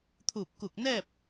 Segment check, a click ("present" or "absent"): absent